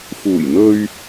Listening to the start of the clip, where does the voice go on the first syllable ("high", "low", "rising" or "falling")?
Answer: low